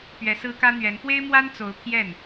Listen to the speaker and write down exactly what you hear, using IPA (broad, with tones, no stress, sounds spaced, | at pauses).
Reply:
p ɥ ɛ˧˥ s ɹ̩˥ k ä˥ n̪ ɥ ɛ˧˥ n p w e˥ ɪ̯ m w a˥ n t͡s o˧˥ ʊ̯ pʰ j ɛ˥˩ n